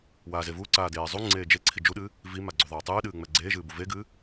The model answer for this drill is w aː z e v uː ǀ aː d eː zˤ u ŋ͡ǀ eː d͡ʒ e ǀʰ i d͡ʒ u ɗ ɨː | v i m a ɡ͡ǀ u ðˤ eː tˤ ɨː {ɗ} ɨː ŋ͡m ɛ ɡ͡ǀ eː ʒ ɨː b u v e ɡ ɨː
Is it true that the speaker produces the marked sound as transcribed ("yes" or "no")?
yes